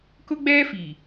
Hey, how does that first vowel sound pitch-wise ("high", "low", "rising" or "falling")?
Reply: high